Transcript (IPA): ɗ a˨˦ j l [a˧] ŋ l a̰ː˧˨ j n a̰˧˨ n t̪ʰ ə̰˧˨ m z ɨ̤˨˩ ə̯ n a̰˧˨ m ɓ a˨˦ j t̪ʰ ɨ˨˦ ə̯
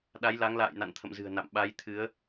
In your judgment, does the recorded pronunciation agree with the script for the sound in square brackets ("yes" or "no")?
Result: no